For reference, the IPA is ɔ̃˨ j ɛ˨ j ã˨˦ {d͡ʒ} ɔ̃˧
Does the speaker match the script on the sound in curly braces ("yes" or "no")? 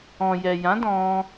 no